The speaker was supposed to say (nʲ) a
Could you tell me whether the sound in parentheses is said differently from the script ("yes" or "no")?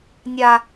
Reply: no